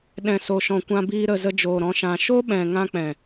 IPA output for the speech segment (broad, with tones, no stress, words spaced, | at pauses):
ɗɛ̃˨so˨ʃɔ̃˨ kʷã˧biː˧ ɾə˨ zə˧d͡ʒoː˨ɾɔ̃˧ ʃã˨ʃo˦ɓɛ̃˨ ŋã˧k͡pɛ̃˨